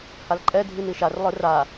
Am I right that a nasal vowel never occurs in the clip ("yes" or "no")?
yes